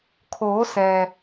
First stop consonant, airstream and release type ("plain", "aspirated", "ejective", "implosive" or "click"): aspirated